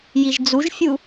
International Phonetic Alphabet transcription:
jiʒd͡zuʒfʲu

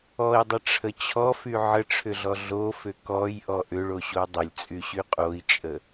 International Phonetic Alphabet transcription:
ɔi̯dˤəʈ͡ʂʰə t͡ɕʰɔfy ʕəʈ͡ʂʰʏɮɔ ɮofʏ kɔjʔɔ ʔʏɭoɕo dˤəlʲt͡sʼyɕy qʼoi̯t͡ʃʼə

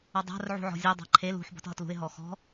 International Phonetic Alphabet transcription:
ʌdˤa̤r ʕṳʕɔ̤zʲʌ dˤa̤ǃʰel ṳħ bɔ̤tɦʌtlṳɪ̯ ɦɔxɔ̤

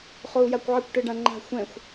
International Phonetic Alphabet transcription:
χou̯jakʷʕɘkʷ ʈɨɖãŋ͡ǃa̤ xʷɛ̃xʷ

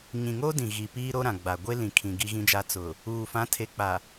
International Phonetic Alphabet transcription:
ɲĩ˨ŋo˦ dĩ˨ɣi˨ piː˦ɾo˦ɾã˨ɡ͡ba˨ ɡʷe˦lĩ˨kʰĩ˨ ɡi˦ɣĩ˦d͡ʒa˦ t͡sʊ˨ | uː˨ fã˨˦tʰe˨k͡pa˨

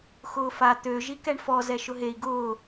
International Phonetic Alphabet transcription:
xʊːfa t̪ø ʒikɛɳfɔ zɛʃʊɦei̯ ɡʊː

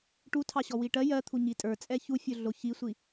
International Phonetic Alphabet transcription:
ʈutʰɑɕɔ wiʈɜ jɜt̪ʰu ɲitʼə˞ t͡sʼɛçu fʲʊɮoçisʷi

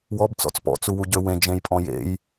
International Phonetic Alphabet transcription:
wɔb t͡sɔ̰t͡spɔ̰ t͡suwuɟøwẽ d͡ʒẽjpʼɔ̃jḛj

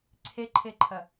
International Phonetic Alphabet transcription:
ǀʰeǃʰeǃʰɐ

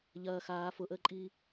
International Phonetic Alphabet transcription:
ʎɐː xaː fʊʔəːǃʼiː

